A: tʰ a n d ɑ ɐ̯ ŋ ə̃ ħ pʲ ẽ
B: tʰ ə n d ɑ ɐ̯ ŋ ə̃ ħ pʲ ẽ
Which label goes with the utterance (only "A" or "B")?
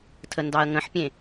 B